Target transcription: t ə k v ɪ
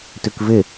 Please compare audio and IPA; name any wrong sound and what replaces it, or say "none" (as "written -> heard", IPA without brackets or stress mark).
ə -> ʉ